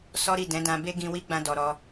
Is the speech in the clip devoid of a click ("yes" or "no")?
yes